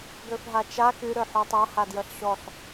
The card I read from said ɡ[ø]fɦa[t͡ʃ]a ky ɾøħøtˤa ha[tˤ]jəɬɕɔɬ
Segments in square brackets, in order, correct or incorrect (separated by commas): correct, correct, incorrect